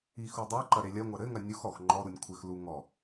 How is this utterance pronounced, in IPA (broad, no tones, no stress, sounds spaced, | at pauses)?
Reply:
i x u dˤ e ǃ ɐ ɾ e lʲ ɐ ŋʷ ɐ ɾ ɘ ŋ ɐ nʲ u x ɔ x ŋ͡ǃ ɔ ɾ u nʲ kʷʰ ɘ x l u ŋ ɔ